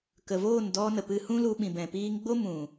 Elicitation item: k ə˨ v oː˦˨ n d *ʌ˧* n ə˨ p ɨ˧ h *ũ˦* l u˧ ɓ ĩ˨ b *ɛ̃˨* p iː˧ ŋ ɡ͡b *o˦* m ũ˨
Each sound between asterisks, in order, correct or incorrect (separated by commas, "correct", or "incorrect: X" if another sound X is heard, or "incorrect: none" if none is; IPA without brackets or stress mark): incorrect: ɔ˧, correct, correct, correct